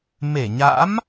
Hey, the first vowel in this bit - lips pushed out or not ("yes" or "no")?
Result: no